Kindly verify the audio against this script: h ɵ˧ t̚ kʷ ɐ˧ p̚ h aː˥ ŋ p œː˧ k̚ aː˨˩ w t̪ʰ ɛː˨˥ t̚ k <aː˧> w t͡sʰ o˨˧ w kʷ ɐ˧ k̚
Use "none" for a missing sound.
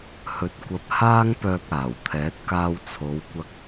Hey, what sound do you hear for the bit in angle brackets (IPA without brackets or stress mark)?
aː˧